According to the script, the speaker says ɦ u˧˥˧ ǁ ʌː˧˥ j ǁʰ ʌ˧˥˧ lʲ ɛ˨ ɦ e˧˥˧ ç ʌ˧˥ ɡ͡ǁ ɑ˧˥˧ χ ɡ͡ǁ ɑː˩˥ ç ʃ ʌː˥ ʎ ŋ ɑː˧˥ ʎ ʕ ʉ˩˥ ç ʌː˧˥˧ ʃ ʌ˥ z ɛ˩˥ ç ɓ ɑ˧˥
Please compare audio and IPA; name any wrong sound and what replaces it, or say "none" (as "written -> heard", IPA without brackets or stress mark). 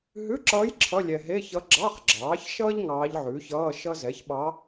u˧˥˧ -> ʉ˧˥˧